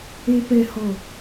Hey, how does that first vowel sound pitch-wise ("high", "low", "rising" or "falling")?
low